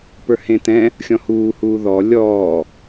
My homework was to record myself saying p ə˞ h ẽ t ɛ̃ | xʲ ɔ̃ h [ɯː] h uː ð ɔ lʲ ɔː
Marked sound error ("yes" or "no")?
yes